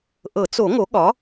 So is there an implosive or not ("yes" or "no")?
yes